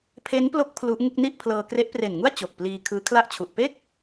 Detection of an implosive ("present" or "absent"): absent